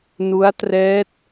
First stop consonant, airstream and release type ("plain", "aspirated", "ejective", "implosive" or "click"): plain